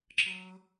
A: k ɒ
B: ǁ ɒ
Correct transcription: B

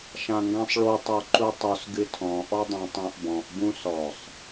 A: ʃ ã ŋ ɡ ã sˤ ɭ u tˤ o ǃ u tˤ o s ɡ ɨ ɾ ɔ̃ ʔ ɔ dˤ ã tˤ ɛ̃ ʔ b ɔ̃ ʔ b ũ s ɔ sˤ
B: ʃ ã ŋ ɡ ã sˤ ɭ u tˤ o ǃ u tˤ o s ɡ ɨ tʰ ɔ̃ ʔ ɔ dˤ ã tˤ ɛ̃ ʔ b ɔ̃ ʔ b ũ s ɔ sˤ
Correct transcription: B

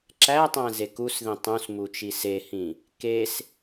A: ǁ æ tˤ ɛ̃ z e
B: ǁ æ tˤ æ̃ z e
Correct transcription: B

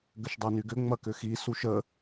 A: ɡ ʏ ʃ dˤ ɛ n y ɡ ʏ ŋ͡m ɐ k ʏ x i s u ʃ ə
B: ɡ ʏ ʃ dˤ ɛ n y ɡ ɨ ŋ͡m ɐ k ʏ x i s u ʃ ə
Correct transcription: A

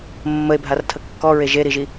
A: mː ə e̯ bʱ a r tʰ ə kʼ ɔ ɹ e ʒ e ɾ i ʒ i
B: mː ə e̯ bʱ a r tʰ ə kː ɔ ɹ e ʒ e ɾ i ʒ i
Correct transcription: B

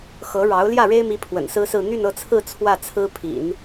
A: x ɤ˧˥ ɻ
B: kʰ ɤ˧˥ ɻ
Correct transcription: A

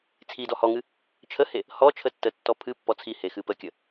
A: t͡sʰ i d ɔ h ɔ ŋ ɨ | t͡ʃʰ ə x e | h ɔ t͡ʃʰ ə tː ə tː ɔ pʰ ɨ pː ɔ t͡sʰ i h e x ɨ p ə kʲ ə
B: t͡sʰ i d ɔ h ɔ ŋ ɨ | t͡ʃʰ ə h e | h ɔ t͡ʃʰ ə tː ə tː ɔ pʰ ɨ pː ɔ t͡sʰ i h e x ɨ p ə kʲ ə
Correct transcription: B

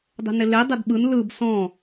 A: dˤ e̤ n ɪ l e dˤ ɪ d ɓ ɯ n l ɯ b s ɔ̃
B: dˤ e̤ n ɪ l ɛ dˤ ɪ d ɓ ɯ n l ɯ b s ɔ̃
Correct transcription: A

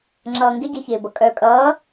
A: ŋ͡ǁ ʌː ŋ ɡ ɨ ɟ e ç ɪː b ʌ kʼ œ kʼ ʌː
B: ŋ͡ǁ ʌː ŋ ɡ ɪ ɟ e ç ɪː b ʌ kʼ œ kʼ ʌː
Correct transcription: B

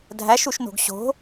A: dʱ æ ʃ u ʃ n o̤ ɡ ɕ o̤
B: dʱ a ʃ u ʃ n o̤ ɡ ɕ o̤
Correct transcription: A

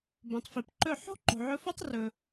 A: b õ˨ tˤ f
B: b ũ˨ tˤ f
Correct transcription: A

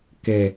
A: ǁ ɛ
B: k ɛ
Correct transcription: B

